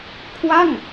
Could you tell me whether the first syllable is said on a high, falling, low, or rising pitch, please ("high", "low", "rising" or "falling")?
falling